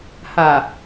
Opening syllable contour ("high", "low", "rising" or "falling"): low